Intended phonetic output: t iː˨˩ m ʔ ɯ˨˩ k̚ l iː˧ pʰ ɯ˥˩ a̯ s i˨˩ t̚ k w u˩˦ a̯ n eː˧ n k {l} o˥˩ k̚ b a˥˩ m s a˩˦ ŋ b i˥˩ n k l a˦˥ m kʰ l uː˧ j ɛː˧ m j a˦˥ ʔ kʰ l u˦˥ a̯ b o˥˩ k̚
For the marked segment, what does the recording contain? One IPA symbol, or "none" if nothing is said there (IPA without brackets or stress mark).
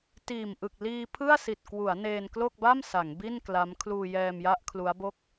l